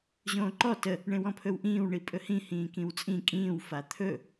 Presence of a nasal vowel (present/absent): present